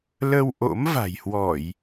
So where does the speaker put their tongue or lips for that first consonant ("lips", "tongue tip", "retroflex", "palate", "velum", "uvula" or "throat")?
tongue tip